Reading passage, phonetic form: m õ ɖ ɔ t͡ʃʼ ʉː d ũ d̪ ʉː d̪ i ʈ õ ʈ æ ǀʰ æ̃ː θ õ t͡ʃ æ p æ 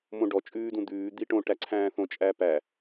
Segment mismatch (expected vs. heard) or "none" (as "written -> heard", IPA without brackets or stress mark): t͡ʃ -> t͡ʃʼ